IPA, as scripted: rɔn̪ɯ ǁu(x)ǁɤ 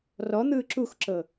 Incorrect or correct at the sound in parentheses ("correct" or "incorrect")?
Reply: correct